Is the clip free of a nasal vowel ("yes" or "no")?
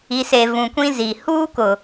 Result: no